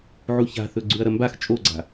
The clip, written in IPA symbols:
ʕ u ç a̤ θ ɵ ɡ͡ǀ ʉ ɐ̯ ɾ ɐ m b a x t͡ʃʼ o ɡ͡ǀ a̤

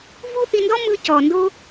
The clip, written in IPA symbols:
v u˦ θ i˧ n d ɔ˦ m ɯ˧ c ɔ˨ n d o˦

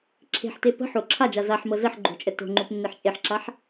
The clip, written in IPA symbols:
ǁʰ e̤ ħ t e p ə̤ ħ o ǁʰ a d͡ʒ a z a ħ m ɤ z ə ħ ɡ͡ǃ o̤ t͡ʃʼ ə t o̤ ŋ͡ǃ o p nː e ħ t͡ʃʼ e ħ ǁ a ħ

